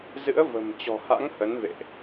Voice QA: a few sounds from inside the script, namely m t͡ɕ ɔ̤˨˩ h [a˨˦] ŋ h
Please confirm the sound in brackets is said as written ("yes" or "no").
no